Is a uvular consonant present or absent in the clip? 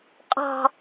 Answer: present